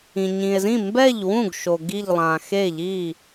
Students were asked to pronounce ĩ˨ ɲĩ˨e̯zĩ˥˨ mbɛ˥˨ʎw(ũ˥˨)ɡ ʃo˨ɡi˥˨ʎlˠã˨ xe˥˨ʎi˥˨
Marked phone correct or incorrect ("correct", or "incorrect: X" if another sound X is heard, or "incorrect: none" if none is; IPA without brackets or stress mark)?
correct